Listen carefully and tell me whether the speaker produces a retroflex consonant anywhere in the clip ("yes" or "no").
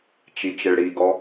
yes